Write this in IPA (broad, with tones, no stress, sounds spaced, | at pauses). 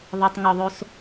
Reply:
ðˤ e˨ tˤ ŋ ɔ˨ ðˤ o˦ s